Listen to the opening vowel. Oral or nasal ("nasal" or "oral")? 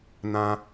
nasal